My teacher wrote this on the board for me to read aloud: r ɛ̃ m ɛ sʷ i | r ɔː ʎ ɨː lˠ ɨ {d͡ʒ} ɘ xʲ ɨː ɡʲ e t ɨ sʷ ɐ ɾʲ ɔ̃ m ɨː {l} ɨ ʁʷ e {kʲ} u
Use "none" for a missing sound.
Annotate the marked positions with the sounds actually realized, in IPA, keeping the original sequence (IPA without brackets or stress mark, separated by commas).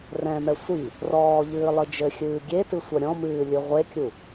d͡ʒ, lʲ, kʲ